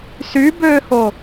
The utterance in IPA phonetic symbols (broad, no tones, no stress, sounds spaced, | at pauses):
s y b øː h o